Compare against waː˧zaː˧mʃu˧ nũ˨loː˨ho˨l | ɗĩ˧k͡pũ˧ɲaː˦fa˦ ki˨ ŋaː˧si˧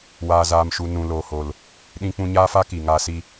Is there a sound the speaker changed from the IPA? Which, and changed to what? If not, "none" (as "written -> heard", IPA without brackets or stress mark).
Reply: none